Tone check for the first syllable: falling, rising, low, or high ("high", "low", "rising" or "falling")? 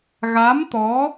rising